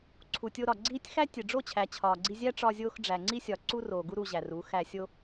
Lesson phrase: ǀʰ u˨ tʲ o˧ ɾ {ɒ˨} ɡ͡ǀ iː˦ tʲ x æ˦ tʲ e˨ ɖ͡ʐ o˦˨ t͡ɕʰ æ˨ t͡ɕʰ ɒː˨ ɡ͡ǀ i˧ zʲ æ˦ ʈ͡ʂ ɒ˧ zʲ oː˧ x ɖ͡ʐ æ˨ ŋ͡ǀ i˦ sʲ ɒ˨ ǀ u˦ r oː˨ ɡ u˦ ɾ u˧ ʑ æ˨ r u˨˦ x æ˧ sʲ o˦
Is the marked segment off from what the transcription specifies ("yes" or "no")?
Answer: no